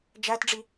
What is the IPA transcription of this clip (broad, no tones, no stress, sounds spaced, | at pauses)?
d͡ʒ æ t ɖ͡ʐ i